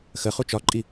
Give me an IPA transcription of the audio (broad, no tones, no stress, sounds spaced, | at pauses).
x ə χ u t͡ʃ ɒ ǃʼ i